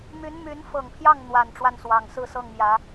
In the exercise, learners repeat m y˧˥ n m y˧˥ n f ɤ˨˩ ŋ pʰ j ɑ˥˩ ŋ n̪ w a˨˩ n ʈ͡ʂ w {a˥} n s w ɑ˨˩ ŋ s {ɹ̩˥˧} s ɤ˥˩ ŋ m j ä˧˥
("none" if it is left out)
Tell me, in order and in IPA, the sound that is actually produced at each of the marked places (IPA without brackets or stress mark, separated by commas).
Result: a˥˩, ɹ̩˥˧